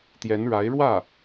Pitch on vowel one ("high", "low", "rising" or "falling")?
rising